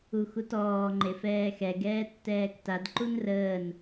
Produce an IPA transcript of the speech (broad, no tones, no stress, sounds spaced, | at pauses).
u x u t ɔː ŋ͡ǃ e f ɛː x ɛ ɡ ɛː tː ɛː k t a d ǃ u n r əː n